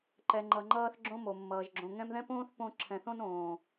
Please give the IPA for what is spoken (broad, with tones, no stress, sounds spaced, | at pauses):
ǃ ɛ˨ ŋ͡ǃ ʌ˨ ŋ͡ǃ ʌː˦ θ ɡ͡ǁ õ˦ m o˩ mː ʌː˩ ʒ ɡ͡ǁ õ˨ ŋ ɛ̃˦ m ð ɛ̃˥ p õː˥ θ p õ˦ ǁʰ ɛ̃˨ θ õ˥ n õː˩